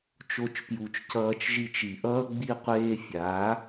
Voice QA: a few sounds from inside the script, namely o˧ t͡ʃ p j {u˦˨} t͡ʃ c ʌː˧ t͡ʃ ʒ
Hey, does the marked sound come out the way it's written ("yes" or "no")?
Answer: no